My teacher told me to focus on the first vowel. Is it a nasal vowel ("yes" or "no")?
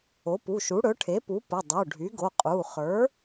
no